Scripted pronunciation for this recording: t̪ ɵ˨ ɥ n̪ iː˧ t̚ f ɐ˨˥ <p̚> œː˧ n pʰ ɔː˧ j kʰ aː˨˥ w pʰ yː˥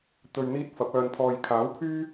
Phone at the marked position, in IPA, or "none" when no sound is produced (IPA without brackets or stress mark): p̚